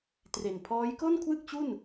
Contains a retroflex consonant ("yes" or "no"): no